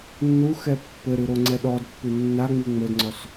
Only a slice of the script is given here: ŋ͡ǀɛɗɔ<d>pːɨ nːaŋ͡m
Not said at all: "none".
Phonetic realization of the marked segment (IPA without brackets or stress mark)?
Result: d